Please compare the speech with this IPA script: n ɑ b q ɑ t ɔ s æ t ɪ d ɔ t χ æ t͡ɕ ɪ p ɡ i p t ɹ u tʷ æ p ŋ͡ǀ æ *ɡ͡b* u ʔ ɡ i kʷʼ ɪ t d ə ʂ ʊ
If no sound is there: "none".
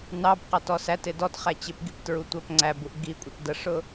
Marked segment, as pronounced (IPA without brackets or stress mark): b